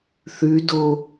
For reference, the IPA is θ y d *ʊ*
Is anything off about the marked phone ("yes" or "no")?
no